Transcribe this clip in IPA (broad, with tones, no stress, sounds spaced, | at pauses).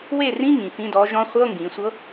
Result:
w e˥˩ r ĩ˧˥˧ ŋ ĩ˩˧ f ĩ˧˥˧ d ɔ˧˥ ʒ ɔ̃˧˥ χʷ ɤ˧˥˧ ŋ ɡ ĩ˩˧ sʷ ɤ˧˥